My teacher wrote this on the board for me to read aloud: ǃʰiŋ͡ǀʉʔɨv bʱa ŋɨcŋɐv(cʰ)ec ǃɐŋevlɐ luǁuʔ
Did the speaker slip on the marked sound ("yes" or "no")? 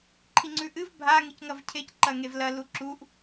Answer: no